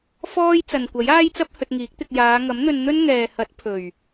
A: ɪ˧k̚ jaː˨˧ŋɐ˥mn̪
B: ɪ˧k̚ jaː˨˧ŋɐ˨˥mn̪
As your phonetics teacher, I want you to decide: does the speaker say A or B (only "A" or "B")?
B